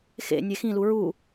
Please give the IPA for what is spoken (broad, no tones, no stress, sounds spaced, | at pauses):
x ḛ nʲ e x ĩ l u ɹ u